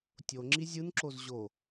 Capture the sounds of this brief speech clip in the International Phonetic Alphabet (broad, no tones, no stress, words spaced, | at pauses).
tʲo ŋ͡ǁizʲɯnǁoz ʑo